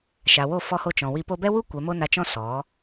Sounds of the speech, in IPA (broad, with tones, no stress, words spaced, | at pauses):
ʃa˨wo˦˨fɔ˧ho˧ t͡ʃɔ̃˨wi˧ po˧bɛ˦wu˦ kʷɛ˨˦mo˦na˧t͡ʃɔ̃˦ sɔ˨˦